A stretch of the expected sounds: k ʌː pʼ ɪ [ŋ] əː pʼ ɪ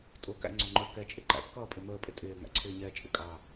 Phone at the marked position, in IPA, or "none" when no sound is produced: m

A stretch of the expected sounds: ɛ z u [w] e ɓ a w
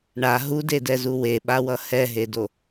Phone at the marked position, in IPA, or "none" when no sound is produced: w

